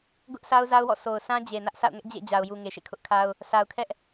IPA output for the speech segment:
ɡ ʊ˦ ʔ sʰ a˦ ʊ̯ z a˦ ʊ̯ w ɔ̰˦˨ sʰ o˨ ʊ̯ sʰ ã˦ d͡ʑ e˨ n ä˦ ʔ sʰ a̰˦˨ ʊ̯ ŋ ɛ˦ ʔ d͡ʑ ḛ˦˨ d͡ʑ a˨ ʊ̯ j u˨ ŋ e˨ ʃ ḛ˦˨ kʰ ʊ˦ ʔ kʰ a˦ ʊ̯ | sʰ a˨ ʊ̯ kʰ ɛ˦ ʔ

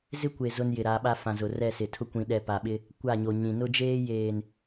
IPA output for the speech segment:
z ɪ˦ kʷ e˨ z ʊ˦ n j ɪ˨ ɾ a˨˦ ɓ a˦ f ã˨ z ʊ˨ r ɛ˦˨ s ɪ˨ tʰ ʊ˦ kʷ ĩ˨ ɗ ɛ˨ p a˨ ɓ ɪ˦ | kʷ a˦˨ ɲ o˨ ɲ ĩ˨ n ʊ˦ d͡ʒ eː˦ j eː˨ n

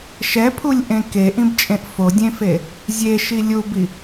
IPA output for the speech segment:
ʃ ɛ pʰ u lʲ ʔ ẽ k e ʔ ĩ b t͡ʃʼ ẽ ʔ f o dʲ ẽ f e | zʲ e ʃ i lʲ u b i

